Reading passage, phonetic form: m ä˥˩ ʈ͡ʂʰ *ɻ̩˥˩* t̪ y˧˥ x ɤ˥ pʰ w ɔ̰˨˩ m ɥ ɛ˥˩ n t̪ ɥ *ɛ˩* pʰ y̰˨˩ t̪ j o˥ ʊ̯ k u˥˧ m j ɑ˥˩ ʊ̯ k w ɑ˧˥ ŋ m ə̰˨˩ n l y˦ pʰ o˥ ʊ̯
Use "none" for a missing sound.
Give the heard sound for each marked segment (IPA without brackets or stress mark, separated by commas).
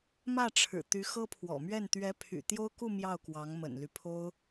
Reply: ɻ̩˨˩, ɛ˧˥